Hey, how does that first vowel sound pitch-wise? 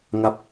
falling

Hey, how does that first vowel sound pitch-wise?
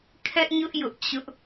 high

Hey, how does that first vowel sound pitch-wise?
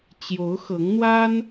rising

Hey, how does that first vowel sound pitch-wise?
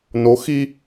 rising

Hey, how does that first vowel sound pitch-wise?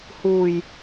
low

